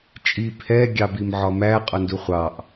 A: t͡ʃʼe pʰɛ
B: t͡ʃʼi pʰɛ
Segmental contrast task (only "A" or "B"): B